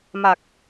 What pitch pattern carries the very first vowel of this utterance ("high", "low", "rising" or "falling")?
low